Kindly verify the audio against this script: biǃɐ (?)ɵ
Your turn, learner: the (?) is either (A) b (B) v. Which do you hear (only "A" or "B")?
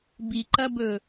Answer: A